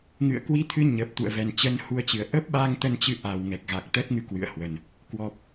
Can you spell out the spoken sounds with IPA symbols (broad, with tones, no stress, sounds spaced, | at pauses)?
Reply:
ŋ ɨ̰˧˨ ə̯ k w i˧ t̪ʰ ɨ˧ ɲ ə˨˩ p̚ t̪ ṵ˧˨ ə̯ v ɛ˨˩ n t͡ɕ ə˨˦ n h u˧ ə̯ t͡ɕ ɨ˨˩ ə̯ ʔ ə˦˥ p̚ ɓ a˧ ŋ t̪ ə˧ n t͡ɕ ɨ˧ ʔ a˨˩ w ŋ ɛ˨˩ k̚ ɣ a˨˩ k̚ t̪ ə˦˥ t̚ ŋ ɨ˧ k w ɨ̰˧˨ ə̯ h w ə˨˩ n | k w ɔ˨˩ p̚